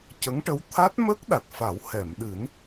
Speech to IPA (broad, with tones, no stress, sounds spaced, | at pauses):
c ə˧˥ ŋ ʈ ə˧˥ w t̪ʰ a˦˥ t̚ m ə˦˥ k̚ ɗ a˨˩ t̚ f a˨˩˦ w h ɛ˨˩˨ m ɗ ɨ˨˩˦ n